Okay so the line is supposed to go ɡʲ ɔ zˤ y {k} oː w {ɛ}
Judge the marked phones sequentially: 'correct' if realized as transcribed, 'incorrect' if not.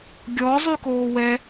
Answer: correct, correct

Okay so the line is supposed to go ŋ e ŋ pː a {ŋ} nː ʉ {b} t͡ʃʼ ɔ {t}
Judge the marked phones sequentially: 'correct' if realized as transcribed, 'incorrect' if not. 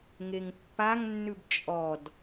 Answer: correct, correct, incorrect

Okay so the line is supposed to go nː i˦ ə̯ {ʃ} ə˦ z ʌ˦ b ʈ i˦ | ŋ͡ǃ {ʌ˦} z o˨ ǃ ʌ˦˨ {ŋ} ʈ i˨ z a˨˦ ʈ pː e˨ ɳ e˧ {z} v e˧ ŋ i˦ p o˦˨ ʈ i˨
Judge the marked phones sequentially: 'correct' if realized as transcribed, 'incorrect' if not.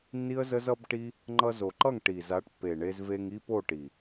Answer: incorrect, incorrect, correct, correct

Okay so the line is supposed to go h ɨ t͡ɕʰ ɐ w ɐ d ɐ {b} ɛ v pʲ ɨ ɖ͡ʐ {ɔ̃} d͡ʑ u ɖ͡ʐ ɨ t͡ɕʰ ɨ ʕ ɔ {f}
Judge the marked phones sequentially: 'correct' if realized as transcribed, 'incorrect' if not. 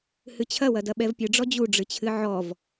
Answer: incorrect, incorrect, incorrect

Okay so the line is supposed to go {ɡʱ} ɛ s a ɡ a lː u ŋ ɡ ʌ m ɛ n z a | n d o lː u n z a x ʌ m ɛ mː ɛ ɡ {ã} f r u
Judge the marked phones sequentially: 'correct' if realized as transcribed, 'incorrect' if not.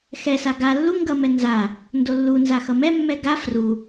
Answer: incorrect, incorrect

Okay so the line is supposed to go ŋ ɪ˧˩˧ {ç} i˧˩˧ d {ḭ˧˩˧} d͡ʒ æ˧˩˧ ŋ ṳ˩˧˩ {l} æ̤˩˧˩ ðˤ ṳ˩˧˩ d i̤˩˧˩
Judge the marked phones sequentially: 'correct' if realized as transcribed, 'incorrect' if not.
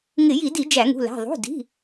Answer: incorrect, incorrect, correct

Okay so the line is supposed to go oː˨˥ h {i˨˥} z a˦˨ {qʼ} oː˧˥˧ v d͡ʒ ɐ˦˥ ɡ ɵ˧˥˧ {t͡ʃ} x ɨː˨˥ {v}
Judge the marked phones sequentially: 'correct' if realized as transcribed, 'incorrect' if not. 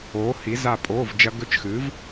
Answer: correct, incorrect, correct, correct

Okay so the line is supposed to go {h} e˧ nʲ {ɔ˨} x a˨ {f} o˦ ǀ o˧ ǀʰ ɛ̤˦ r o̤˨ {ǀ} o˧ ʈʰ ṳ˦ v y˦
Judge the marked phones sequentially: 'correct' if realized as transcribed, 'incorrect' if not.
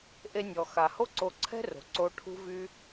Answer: incorrect, correct, incorrect, correct

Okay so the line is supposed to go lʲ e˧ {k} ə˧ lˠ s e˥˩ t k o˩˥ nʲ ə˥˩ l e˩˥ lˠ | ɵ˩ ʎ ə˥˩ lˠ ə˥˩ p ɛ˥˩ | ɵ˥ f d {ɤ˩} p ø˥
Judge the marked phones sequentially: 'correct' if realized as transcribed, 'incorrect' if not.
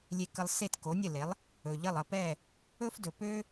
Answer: correct, incorrect

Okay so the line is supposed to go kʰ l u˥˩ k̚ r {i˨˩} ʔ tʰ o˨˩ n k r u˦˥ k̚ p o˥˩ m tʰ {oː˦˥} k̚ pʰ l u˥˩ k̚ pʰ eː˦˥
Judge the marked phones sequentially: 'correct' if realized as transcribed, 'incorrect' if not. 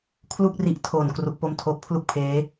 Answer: incorrect, correct

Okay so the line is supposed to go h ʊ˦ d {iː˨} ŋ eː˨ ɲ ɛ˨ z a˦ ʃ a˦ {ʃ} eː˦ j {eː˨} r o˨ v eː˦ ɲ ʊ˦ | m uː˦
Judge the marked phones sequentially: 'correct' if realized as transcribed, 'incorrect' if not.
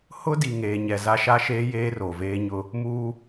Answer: incorrect, correct, incorrect

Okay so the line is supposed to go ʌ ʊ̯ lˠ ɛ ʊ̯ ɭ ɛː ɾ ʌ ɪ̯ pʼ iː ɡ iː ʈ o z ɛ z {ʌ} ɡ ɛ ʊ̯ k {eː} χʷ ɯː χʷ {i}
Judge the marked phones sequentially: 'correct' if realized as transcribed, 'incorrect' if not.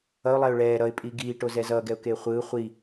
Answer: incorrect, correct, correct

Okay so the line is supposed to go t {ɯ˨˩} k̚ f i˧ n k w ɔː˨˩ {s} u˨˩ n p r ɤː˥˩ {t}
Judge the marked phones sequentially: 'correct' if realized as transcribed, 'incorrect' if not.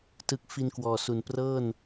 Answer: correct, correct, incorrect

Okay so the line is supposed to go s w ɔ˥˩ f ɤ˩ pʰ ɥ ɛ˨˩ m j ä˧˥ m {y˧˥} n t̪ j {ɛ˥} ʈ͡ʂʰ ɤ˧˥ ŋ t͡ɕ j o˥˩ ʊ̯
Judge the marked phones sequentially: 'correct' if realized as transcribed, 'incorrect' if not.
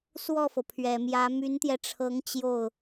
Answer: correct, incorrect

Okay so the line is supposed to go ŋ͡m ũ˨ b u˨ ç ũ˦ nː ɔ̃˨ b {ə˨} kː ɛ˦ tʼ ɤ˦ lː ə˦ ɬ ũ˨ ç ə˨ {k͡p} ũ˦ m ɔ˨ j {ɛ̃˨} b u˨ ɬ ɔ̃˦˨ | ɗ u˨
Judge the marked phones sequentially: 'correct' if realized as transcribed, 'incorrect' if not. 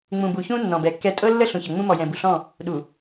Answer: incorrect, incorrect, correct

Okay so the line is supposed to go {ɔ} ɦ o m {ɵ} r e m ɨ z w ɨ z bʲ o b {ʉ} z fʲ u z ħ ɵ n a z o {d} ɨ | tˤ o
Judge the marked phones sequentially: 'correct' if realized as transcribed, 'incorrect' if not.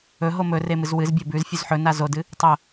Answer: incorrect, correct, correct, correct

